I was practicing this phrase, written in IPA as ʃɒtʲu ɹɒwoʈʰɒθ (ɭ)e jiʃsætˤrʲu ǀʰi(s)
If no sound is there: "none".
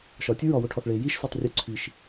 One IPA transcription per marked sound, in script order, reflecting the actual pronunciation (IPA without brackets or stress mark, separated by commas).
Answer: ɭ, ʃ